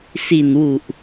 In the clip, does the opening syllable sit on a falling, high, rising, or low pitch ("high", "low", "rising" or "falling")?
low